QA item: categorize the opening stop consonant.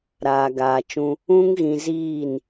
plain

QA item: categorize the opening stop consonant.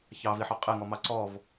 ejective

